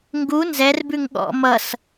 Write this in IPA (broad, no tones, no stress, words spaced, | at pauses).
ŋɡu nzɛrbʉŋ ɠɔ̰ mʌs